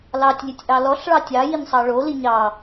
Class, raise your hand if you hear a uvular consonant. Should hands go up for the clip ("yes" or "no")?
no